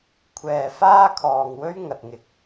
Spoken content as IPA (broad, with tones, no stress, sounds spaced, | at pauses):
kʷʰ ɛː˨ f aː˥ kʰ ɔː˨ ŋ w ɵ˥ ɥ ŋ ɐ˨ t̚ ŋ ɪ˨ k̚